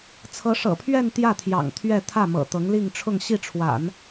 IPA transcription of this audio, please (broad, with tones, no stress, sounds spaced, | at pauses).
t͡sʰ ɤ˧˥ ʂ ɤ̰˨˩ pʰ ɥ ɛ˥˧ n t̪ j ä˥˩ t̪ʰ j ɑ̰˨˩ ŋ t̪ʰ ɥ ɛ˥˧ t̪ʰ ä˥˩ m ɤ̰˨˩ t̪ ɤ˧˥ ŋ l i˥˧ ŋ ʈ͡ʂʰ ʊ˥˧ ŋ ɕ i˥˩ ʈ͡ʂʰ w a̰˨˩˦ n